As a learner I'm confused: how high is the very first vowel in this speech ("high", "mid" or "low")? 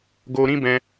mid